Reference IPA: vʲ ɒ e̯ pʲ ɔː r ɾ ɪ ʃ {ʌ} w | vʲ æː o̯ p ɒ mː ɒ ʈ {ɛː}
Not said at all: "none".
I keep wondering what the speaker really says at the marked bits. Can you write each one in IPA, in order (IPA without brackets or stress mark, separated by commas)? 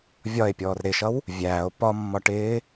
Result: ʌ, ɪː